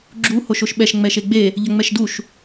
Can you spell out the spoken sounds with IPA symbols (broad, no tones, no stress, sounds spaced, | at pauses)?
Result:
ɡ͡ǁ u h o ʃ o ʃ ɓ ɛ ʃ ŋ͡m ɛ ʃ e ɡ͡b e | ʎ ɐ ŋ͡m ɛ ʃ d u ʃ